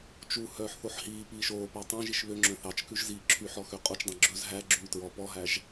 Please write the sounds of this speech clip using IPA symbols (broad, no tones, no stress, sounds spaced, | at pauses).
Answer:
t͡ʃ u h œː ħ θ o ħ h iː p iː ʃ oː p æ tˤ œ̃ ʒ i ʃ β ø ŋ͡ǁ œ̃ θ ɑ t͡ʃ k ʉ ʒ z iː ǁʰ y ħ ɔ x ø qʼ o t͡ʃ dˤ ẽ ɡ͡ǁ ɵ z ɦ æ ɡ͡ǁ yː t ɹ ɔ p ɔ ɦ æ ʒ